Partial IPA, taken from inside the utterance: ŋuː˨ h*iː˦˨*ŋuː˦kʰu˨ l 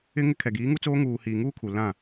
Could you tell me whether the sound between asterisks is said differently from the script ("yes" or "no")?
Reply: yes